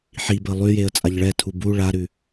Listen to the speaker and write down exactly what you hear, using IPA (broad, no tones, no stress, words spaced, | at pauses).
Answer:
ħibə lˠʉjeə̯ t͡sʼaʎɭɛtʰu bu ɭaɾʉ